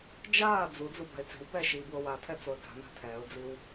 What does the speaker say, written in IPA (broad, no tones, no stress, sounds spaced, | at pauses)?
d͡ʒ aː d͡z u d͡z u b a̤ ɪ̯ t͡s e̤ w b ɛː ʃ iː b w o w a tʰ ɛ t͡s o ə̯ ɡ a̤ n a̤ tʰ ɛː ʊ̯ d͡z i w